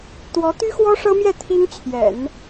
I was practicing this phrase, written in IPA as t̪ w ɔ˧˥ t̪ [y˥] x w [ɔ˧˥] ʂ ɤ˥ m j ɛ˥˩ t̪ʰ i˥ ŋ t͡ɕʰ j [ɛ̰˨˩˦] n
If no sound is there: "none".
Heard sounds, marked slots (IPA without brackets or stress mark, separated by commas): y˥, ɔ˥, ɛ̰˨˩˦